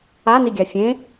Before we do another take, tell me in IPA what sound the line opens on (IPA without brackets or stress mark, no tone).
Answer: a